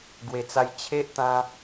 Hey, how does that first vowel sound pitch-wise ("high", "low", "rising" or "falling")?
low